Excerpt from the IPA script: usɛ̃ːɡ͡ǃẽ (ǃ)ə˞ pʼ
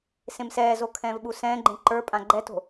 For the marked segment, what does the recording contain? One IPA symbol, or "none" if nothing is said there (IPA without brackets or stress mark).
ǃ